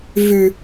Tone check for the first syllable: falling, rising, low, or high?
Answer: low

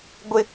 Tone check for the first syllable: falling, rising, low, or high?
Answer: high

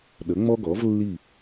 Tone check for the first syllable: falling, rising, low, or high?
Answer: rising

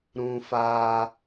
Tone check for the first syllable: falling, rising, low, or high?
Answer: high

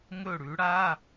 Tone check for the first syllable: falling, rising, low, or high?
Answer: falling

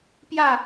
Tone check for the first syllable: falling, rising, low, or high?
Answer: falling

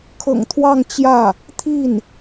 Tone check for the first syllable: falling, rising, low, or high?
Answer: low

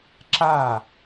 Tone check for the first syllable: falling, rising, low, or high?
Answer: falling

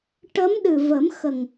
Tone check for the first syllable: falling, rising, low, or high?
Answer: rising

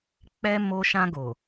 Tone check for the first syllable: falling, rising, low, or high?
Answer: high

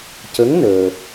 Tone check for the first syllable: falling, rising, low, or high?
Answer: rising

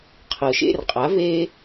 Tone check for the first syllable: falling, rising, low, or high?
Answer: low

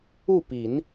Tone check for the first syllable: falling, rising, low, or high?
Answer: falling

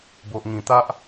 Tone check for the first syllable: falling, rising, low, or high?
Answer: low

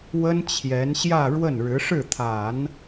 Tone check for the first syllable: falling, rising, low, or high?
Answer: high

